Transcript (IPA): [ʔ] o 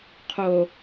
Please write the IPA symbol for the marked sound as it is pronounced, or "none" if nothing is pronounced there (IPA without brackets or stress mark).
qʰ